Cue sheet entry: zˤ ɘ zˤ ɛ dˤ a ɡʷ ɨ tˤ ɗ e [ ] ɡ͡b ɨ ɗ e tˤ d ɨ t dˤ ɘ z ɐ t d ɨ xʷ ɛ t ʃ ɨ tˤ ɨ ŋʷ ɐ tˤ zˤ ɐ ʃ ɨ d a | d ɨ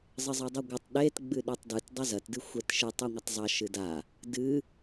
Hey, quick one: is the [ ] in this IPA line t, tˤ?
t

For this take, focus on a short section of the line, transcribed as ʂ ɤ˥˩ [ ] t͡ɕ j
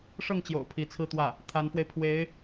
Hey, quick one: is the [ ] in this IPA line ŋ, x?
ŋ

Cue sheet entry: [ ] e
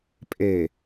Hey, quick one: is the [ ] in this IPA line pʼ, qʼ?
pʼ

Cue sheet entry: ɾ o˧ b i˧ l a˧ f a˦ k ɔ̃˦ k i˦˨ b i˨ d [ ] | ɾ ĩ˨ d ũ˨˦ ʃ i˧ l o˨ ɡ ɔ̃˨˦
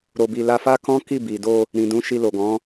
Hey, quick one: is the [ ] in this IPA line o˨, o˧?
o˧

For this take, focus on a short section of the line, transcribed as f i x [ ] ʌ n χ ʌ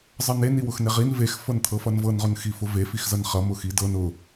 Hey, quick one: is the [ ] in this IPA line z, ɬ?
z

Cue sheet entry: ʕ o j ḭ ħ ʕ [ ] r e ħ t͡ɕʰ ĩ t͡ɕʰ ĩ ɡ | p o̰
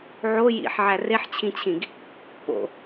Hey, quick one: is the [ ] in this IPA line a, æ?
æ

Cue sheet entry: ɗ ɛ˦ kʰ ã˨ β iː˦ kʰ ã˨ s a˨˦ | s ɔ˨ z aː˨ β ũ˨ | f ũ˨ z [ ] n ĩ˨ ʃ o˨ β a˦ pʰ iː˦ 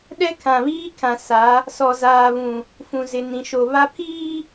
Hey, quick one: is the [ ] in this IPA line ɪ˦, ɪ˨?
ɪ˨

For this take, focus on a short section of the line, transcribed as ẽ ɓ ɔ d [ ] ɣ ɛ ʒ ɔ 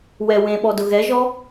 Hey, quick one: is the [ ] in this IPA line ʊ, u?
ʊ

